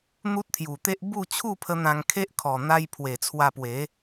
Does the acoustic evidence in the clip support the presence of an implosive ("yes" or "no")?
no